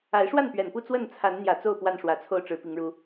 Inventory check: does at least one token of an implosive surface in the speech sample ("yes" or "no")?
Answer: no